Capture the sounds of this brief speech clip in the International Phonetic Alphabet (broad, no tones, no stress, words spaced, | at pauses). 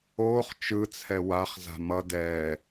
oːχ t͡ʃɯt͡sʰɛ waχza̤ mʌ dɛː